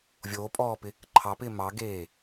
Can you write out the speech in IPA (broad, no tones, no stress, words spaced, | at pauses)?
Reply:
vʲoːpʼɔːpɪ | ǃʰɑpɪː mɑɡeː